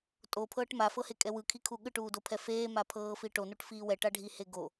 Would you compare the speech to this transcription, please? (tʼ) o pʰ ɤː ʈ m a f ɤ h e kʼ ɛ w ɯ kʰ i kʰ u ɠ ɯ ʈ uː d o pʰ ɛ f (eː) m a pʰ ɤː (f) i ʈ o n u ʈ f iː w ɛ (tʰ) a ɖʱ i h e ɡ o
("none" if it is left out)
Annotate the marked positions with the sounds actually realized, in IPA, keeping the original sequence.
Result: tʼ, eː, f, ʈ

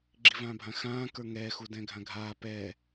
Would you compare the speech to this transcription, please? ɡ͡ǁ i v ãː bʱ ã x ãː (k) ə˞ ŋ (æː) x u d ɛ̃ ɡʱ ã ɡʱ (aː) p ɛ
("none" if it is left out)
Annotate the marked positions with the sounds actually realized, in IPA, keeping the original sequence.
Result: k, ɛː, aː

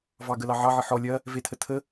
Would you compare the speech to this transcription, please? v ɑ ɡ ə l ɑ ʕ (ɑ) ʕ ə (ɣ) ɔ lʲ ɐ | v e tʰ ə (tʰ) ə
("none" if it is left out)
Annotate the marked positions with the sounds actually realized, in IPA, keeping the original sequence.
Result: ɑ, ħ, tʰ

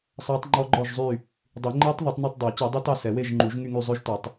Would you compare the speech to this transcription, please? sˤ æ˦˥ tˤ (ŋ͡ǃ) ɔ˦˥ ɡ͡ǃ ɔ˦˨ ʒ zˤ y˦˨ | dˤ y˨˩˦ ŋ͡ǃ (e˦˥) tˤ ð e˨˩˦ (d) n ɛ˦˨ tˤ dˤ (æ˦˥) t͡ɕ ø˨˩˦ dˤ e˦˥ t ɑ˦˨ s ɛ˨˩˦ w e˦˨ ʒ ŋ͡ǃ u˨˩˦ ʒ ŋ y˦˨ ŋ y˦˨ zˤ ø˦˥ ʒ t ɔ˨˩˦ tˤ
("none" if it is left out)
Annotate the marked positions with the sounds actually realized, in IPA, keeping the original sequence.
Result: ŋ͡ǃ, e˦˥, tˤ, æ˨˩˦

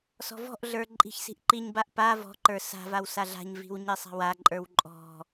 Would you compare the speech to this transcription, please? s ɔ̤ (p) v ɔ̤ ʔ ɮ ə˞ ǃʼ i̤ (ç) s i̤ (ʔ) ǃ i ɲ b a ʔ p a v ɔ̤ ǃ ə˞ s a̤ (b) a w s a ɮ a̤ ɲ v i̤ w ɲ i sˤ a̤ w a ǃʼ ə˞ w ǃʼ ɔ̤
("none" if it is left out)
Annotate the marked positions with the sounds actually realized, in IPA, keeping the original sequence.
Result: none, ç, ʔ, v

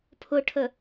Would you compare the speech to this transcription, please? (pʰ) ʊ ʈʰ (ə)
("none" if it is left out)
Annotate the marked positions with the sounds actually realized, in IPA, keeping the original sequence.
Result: pʰ, ə

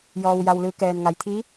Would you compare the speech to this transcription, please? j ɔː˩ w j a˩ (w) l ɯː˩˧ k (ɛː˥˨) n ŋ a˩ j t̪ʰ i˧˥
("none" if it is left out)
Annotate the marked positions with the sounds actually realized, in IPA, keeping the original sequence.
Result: w, ɛː˩

